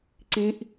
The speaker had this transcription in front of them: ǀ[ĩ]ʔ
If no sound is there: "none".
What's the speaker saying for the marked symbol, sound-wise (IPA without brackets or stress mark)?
ĩ